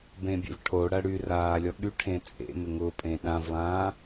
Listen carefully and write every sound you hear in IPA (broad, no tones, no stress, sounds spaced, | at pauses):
b ẽ bʲ ḛ v ʈʰ o ɽ ɐ ɽ y r aː lʲ ɔ ɠ y ʈʰ ẽ t͡sʼ ḛ m ɪ ŋ ʊ pʼ ẽ ɗ ã v lˠ ãː